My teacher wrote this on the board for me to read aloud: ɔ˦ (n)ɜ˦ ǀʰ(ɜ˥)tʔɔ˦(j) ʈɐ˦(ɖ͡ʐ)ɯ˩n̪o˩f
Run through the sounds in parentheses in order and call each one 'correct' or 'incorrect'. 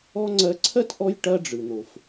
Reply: incorrect: ŋ͡ǀ, correct, correct, correct

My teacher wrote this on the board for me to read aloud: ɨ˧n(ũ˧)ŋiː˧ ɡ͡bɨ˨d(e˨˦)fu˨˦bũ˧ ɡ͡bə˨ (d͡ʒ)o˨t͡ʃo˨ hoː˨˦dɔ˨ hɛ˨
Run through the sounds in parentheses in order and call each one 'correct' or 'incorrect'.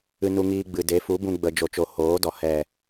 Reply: incorrect: u˧, correct, correct

